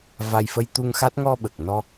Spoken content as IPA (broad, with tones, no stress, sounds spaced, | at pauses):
v a˧ j f ə˧ j t̪ u˧ ŋ x a˦˥ t̚ ŋ ɔ˧ ɓ ə˨˩ k̚ n ɔ˧